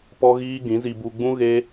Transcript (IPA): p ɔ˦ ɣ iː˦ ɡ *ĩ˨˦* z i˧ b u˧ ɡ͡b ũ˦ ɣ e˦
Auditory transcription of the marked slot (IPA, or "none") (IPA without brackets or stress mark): ĩ˨˦